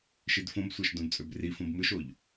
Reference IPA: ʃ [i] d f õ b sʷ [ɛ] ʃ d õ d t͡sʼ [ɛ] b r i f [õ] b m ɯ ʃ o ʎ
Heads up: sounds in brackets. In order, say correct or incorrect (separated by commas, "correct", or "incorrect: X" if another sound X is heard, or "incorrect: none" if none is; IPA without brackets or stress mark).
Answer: correct, incorrect: æ, incorrect: ø, correct